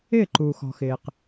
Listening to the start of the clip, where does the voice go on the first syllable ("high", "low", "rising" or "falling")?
falling